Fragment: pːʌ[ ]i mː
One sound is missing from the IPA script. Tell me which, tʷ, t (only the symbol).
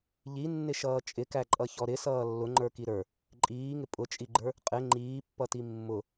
t